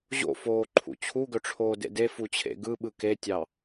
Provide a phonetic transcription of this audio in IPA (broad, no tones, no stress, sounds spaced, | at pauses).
ʑ o̰ f oː ǃʰ ṵ t͡ɕʰ u ɡ ɵ ʈ͡ʂʰ oː d ḛ d e f u t͡ɕʰ ḛ ɡ ɯ ɓ ɯ k e tʲ ɑ